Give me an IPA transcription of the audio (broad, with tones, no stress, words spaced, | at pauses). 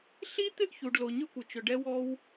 ɬi˦ t̪ɪ˦ʔ çu˨ɖlo˨ ɲʏ˦kʷɪ˨t͡ʃʏ˨ɖɛ˦ wɔ˦w